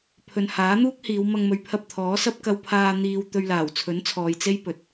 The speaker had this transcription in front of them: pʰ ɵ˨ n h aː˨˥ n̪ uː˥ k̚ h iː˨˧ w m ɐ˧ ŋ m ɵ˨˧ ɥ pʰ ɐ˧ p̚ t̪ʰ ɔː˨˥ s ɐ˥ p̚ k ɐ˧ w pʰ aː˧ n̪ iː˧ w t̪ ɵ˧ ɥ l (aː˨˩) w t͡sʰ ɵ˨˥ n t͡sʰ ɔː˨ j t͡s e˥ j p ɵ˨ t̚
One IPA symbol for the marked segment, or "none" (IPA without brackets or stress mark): aː˨˩